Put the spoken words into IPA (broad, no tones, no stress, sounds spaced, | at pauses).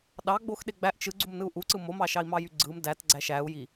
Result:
ɗ ɑ ɡ͡b o x ɗ e ɡ͡b æ ʔ t͡ʃ ɯ ɡ͡ǀ u m n ɯ u̯ ʔ u ǀ ɯ m o m ɑ ʃ ɑ i̯ m ɑ j y ɡ͡ǀ ɯ m d æ t ɡ͡ǀ æ ʃ æ u̯ j i